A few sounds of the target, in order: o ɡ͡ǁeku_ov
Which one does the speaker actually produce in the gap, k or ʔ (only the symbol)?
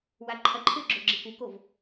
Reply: k